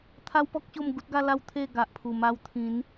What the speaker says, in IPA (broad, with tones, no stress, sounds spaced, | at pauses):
t̪ʰ a˦ w p ɔ˦ k̚ ɕ o˥˧ m ɡ u˦ t̚ ɡ a˦ l a˥˧ w t̪ʰ e˥˧ ɡ a˨ ʔ pʰ u˨˩ m a˧ w t̪ʰ ĩ˨˦ n